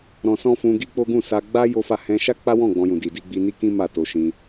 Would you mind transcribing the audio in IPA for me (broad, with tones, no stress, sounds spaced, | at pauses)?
ɾ ɔ̃˧ s ɔ̃˦ f ũ˧ ɡ i˦ k͡p o˦ ɡ ũ˦˨ s a˧ ɡ͡b a˦ j o˦ f a˦˨ h ɛ̃˧ ʃ a˦ k͡p a˦ w ɔ̃˦˨ ɡ͡b ɔ̃˧ j ũ˨ d i˨ d i˧ ɡ͡b i˧ n i˦ k ĩ˦ m a˦˨ t o˧ ʃ ĩ˧